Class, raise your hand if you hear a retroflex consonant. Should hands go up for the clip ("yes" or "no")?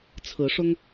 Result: yes